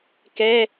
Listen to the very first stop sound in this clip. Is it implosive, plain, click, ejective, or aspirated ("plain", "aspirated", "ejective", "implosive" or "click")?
plain